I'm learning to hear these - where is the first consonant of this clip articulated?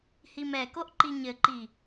throat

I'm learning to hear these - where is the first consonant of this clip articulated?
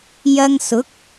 palate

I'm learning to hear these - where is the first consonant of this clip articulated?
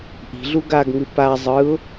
throat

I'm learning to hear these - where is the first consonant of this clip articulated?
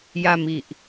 palate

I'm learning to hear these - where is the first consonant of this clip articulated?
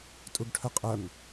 tongue tip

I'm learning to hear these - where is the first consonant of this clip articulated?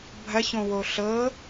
lips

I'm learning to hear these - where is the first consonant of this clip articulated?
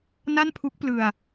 tongue tip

